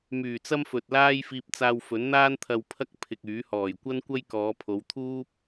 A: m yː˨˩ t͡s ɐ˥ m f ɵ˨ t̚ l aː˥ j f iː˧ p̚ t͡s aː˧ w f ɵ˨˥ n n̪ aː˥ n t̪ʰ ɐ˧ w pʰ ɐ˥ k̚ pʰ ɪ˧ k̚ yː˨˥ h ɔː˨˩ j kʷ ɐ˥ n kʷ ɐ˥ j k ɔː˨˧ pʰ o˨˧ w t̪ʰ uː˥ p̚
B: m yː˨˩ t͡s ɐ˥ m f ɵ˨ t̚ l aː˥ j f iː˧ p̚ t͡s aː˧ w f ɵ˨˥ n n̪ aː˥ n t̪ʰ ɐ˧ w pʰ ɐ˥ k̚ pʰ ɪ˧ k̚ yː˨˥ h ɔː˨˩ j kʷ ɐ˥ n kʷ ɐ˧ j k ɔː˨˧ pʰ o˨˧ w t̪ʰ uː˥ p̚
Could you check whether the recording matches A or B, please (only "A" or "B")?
A